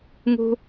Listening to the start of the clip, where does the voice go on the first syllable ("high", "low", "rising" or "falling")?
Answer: high